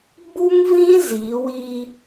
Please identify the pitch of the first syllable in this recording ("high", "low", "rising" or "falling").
high